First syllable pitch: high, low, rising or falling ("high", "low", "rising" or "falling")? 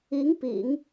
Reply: rising